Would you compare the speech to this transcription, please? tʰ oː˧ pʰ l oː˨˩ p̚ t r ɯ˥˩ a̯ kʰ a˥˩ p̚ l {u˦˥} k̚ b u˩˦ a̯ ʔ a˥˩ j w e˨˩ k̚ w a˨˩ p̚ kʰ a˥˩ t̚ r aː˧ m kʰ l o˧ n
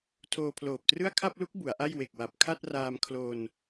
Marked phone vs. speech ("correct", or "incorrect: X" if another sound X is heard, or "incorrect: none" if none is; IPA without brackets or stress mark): correct